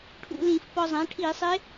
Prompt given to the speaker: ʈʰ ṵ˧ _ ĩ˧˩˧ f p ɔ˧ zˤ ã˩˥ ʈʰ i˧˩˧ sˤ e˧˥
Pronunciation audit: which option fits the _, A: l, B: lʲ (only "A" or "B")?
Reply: A